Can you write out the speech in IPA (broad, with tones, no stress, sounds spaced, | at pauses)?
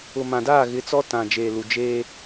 ʊ˨ m ã˨ d aː˦˨ ɣ ɪ˨˦ t͡s ɔ˦ t ã˨ d͡ʒ eː˨ l u˨ d͡ʒ eː˦